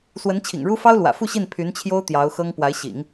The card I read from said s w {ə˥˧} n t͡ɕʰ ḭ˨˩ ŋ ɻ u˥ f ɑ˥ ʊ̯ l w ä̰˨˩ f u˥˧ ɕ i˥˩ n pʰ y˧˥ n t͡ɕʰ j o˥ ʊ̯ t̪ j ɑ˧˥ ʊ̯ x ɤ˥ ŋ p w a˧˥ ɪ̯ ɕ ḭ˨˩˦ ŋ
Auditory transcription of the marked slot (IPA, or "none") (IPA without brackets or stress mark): ə˧˥